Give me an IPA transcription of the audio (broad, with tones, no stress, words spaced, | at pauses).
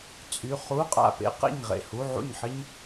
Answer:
t͡sʼy˧˥˧ χu˧˥˧ qʼa̰˥˩pḛ˥qḛ˥˩ɲ ʁḛ˥˩hu˧˥˧ʕṵ˥˩ɲħɪ˥ɲ